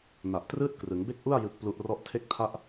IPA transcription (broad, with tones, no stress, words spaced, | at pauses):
na˨˩ʔtrɯː˥˩t̚krɯ˩˦ŋ be˥˩k̚ʔu˥˩a̯ jɯ˥˩k̚plu˥˩ʔ rɔ˦˥ʔtʰe˥˩k̚ tʰa˦˥ʔ